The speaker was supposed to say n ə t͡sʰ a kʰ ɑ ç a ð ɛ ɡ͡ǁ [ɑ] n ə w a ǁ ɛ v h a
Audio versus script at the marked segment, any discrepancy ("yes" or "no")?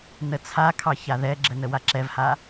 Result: yes